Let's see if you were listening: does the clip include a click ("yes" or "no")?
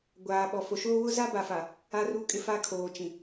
no